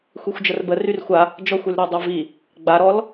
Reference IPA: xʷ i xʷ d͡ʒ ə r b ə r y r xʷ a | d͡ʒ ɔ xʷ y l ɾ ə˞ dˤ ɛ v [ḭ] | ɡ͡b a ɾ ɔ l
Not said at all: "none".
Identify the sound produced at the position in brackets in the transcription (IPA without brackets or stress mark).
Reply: i